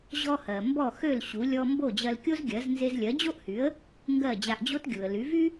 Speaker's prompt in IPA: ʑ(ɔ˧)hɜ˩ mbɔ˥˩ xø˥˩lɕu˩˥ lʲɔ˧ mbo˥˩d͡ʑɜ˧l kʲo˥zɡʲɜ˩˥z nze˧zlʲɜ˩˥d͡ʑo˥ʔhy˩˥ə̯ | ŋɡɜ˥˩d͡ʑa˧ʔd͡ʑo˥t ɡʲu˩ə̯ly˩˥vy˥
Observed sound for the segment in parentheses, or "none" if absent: ɔ˧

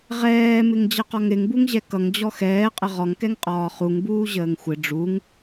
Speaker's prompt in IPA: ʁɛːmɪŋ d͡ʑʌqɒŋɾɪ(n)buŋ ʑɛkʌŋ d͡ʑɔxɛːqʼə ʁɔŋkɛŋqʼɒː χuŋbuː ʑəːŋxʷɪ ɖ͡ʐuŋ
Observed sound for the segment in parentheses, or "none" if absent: ŋ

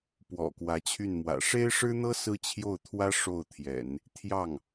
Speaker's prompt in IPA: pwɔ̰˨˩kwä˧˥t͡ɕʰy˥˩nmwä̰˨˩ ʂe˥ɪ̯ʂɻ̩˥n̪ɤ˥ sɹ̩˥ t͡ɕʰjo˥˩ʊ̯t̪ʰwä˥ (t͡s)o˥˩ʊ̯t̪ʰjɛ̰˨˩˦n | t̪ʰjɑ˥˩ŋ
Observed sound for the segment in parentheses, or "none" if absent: ʂ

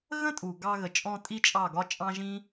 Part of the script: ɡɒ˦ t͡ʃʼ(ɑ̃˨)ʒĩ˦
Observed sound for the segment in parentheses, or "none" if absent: ɑ̃˦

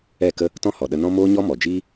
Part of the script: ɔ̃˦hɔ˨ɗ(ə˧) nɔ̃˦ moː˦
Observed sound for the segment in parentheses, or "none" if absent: ə˧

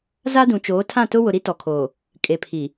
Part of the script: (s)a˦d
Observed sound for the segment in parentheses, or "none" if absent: z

